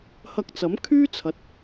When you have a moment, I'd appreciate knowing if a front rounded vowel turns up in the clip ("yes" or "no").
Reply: yes